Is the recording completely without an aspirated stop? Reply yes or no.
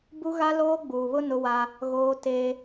yes